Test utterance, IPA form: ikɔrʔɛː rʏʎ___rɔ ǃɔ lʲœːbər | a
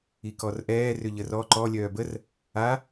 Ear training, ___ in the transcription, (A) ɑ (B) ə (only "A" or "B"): B